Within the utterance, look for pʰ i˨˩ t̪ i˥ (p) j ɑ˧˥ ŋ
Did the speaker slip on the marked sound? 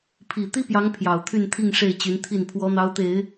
no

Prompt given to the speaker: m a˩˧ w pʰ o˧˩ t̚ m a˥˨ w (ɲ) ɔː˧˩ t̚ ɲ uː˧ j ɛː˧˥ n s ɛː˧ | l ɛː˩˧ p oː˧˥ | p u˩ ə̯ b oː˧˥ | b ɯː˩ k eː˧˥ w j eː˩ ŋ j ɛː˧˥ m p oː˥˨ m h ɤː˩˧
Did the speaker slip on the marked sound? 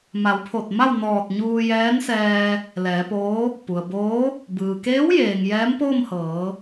yes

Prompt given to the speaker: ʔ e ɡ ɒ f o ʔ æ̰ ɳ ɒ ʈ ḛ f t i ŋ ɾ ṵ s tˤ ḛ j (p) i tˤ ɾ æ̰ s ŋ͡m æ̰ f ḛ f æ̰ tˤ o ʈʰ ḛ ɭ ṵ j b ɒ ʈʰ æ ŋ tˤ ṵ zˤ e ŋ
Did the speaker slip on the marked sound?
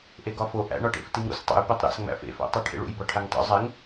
no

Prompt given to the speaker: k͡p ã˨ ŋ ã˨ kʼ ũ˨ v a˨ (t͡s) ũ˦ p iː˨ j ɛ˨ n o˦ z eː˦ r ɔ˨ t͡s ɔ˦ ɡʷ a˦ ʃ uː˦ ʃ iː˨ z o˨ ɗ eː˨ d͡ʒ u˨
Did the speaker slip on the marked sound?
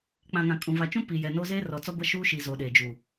yes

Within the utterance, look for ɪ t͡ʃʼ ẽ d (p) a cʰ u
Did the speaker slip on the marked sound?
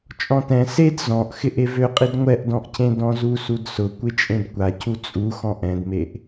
yes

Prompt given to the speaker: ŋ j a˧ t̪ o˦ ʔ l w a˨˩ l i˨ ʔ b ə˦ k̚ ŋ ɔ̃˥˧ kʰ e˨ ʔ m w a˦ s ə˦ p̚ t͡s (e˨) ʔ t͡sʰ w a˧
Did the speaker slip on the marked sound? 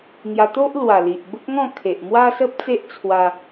yes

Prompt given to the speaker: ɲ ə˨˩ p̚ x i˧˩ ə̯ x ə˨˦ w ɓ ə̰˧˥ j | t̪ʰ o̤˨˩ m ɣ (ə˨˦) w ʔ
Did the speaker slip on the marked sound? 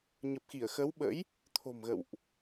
yes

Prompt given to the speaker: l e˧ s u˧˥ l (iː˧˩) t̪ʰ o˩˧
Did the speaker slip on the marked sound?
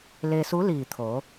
no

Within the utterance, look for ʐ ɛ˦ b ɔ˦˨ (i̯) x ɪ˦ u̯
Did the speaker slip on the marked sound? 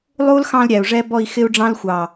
no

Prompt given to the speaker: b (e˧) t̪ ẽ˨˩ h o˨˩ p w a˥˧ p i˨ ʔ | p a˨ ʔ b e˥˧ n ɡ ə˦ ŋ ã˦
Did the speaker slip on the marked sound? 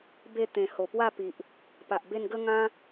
yes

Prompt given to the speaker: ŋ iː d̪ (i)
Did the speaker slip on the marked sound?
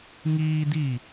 no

